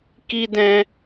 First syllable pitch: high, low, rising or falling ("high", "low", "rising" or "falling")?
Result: high